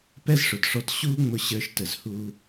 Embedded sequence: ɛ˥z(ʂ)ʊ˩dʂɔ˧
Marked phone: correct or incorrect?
correct